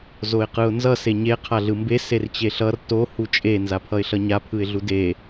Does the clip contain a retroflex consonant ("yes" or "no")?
no